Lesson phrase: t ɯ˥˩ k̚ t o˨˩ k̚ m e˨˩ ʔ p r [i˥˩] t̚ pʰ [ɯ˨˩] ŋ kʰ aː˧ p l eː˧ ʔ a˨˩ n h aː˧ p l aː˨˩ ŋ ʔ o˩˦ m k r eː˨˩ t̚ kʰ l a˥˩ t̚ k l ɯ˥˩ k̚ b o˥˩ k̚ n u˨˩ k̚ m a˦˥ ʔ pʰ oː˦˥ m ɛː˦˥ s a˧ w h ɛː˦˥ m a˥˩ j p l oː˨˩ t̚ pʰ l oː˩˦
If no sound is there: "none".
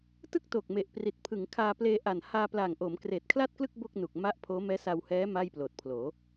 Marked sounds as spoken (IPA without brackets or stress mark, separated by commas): i˨˩, ɯ˩˦